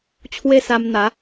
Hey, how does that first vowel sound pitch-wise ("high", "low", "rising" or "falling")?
high